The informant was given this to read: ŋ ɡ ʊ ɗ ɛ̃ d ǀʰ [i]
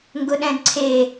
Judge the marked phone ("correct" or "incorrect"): incorrect